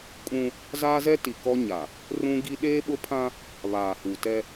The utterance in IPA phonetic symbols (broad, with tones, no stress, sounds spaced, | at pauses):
kʼ ũ˦ | z aː˦ z ɛ˦ t i˨ k ɔ˦ ɲ a˨ | r ũ˦ ɡ i˦ ɗ eː˦ ɓ ʊ˦ pʰ ã˦ | β aː˨ h u˨ t ɛ˦